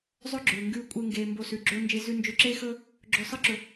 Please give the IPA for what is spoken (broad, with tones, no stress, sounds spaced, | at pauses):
zˤ ɵ˦ ɡ͡ǁ ɵː˨ ŋ ɡ ʉː˧ kʷʼ e˧ ŋ ɡ eː˨ m b o˧ s ʉ˨ ɡ͡ǁ ɵː˦ n d͡ʒ e˧ z ʉ˧ n d͡ʒ ɵ˧ ǁ eː˦ x ɵː˦ | ɡ͡ǁ ɵː˧ sˤ ɨ˦ ǁ ɵ˧